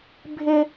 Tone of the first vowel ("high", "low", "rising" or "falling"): high